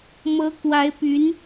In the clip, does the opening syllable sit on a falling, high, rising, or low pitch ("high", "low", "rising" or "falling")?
rising